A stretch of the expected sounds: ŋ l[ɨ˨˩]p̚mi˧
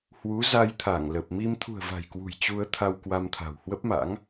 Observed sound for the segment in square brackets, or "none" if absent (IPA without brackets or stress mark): ə˨˩